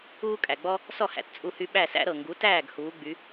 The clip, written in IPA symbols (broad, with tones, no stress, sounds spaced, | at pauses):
uː˥ kʼ æ˩ ɡ͡b ɔ˥ | s ɔ˥˩ h æ̰˩˥ t t͡sʼ u˧ h y˧ ɓ æ˥˩ s æ̰˥ ɾ ɤ˩ ŋ ɡ u˩˥ t æː˥˩ ɡ h uː˩˥ ɡ͡b y˩˥